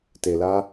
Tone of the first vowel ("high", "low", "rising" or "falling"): low